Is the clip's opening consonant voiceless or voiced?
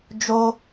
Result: voiced